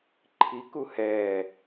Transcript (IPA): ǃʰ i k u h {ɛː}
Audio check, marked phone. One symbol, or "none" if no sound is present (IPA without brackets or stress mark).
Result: ɛː